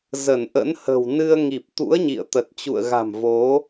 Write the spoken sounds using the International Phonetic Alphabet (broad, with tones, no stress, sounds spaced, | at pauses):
z ə˧˩ n ʔ ə̰˧˥ n h ə̤˨˩ w n ɨ˧ ə̯ ŋ i˨˩ p̚ t̪ ṵ˧˥ ə̯ ɲ ḭ˧˨ ə̯ t̪ ə˨˩ t̚ t͡ɕ ṵ˧˨ ə̯ ɣ a̤˨˩ m v o˨˦